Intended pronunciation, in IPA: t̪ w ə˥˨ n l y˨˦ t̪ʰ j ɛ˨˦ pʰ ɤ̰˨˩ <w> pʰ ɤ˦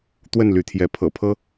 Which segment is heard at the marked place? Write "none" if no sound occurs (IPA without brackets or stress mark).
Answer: none